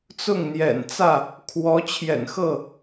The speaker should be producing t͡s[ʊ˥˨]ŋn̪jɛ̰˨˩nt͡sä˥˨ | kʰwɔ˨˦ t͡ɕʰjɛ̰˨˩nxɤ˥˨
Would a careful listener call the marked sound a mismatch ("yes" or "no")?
no